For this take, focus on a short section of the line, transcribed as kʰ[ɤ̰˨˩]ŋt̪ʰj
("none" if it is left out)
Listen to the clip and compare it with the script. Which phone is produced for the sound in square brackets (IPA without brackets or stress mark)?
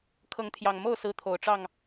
ɤ˨˦